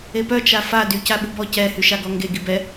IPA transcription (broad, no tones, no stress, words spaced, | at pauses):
epœ t͡ʃafa dy caɓubɔ cɛ hyʃaɡɔŋɡe ɡibɛ